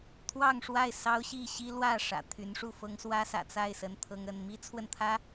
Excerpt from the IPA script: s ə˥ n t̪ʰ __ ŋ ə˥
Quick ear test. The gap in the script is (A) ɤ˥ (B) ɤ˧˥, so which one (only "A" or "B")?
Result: A